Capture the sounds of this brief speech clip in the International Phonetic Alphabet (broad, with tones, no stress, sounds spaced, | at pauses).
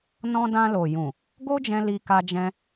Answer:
n ɔ̃˧ d ã˧ l o˨ j ũ˨ | ɡ o˦ d͡ʒ ɛ̃˧ l i˧ k a˧ d͡ʒ ɛ̃˧